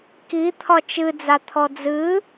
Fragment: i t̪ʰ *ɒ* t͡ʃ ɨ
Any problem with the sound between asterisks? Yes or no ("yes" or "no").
no